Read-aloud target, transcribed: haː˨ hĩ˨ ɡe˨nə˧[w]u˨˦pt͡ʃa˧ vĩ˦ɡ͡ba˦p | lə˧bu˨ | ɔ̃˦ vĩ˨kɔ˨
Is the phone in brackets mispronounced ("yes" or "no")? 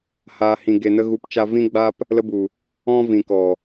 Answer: yes